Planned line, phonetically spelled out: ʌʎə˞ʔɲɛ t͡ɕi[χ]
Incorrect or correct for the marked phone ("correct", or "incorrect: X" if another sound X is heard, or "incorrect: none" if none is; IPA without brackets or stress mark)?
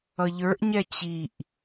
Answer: incorrect: ʔ